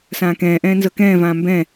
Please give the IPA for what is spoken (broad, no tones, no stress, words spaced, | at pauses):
sãːkɛ̃ːʔɛ̃ː nzɤkɛ̃ːvãː mbɛ̃